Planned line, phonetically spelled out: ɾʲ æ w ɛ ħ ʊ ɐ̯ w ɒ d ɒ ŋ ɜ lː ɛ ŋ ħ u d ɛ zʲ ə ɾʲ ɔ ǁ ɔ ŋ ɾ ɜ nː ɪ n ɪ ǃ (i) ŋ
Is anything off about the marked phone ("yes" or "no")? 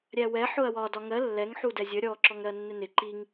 no